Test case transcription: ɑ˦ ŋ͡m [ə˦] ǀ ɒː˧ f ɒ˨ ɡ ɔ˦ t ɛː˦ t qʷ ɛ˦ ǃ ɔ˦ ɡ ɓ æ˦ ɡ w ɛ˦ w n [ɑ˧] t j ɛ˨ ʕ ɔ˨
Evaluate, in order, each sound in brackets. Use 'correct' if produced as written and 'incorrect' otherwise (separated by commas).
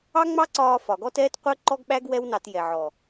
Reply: incorrect, correct